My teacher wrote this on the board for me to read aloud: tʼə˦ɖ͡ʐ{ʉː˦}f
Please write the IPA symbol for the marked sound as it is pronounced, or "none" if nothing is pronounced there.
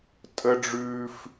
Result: ʉː˦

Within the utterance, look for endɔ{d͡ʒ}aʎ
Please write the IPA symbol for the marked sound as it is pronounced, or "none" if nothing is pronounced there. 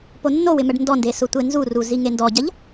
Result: ɟ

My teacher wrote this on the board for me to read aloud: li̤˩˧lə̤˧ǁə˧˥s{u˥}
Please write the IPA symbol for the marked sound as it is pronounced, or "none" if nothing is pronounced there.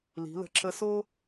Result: o˥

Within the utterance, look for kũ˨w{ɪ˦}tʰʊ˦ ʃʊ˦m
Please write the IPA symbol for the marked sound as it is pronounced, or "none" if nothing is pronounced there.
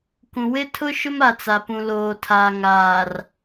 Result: ɪ˦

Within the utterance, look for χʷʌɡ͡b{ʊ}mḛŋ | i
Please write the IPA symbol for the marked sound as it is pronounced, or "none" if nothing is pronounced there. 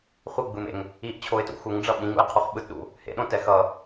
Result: ɯ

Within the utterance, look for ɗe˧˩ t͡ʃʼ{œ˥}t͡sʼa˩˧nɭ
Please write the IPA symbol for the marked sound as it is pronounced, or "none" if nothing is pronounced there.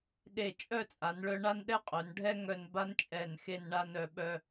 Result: œ˥˧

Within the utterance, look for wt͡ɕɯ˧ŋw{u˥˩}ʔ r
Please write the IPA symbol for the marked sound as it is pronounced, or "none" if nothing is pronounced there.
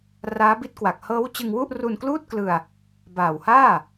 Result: u˥˩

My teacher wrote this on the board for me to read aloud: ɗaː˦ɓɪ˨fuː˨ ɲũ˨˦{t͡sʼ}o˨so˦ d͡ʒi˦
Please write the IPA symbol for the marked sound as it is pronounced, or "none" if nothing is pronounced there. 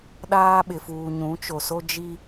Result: t͡ʃ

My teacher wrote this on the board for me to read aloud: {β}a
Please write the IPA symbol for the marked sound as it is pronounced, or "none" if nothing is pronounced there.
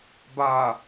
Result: b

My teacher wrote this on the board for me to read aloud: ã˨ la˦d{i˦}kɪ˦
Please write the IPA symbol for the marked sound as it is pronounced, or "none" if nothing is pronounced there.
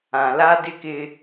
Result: ɪ˦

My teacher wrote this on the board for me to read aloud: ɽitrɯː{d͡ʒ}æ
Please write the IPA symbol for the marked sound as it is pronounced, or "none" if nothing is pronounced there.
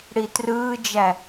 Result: d͡ʒ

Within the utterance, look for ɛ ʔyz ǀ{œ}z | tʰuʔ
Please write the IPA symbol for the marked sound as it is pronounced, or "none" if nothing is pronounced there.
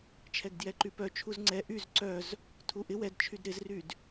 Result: œ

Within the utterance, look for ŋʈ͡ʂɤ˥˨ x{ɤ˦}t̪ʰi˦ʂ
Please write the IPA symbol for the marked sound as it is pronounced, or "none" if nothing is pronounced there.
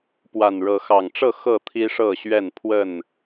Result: ɤ˥˨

